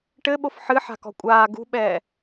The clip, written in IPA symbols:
ʈɘɓof ħɨ ħa̤kɔ̤kʷʼaː ɡṳɓɛː

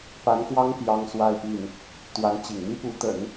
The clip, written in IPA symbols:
pa˧˥nkwɑ˥ŋ pjɑ˥ŋswa˥˧ɪ̯pi˥˩n | t̪wa˧˥nt͡ɕḭ˨˩ŋ n̪i˥ pu˧˥t̪ə̰˨˩˦n

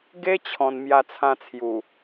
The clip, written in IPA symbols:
ɡe˦t͡ɕʰɔ̃˨˩n mja˧t͡sʰã˧t͡sʰju˨˩

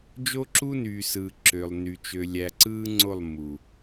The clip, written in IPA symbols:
d͡ʒo˦ǁu˦nyː˨sɯː˨ ǁø˨lˠny˨ t͡ʃø˨lʲæ˨ǀɯː˦ŋ͡ǀo˦˨lˠ mu˨

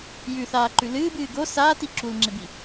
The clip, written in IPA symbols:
jʉθaːǃʉ lɨːbɨː ɡo saːti ǁulŋ͡ǁebi

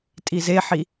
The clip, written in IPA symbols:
tʼizeħi

